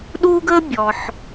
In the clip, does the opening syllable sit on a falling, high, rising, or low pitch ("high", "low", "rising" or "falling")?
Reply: high